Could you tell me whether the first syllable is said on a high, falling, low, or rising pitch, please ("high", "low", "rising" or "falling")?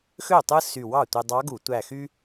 falling